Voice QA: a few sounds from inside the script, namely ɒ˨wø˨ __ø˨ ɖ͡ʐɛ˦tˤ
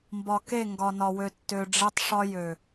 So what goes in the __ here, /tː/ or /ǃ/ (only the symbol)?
tː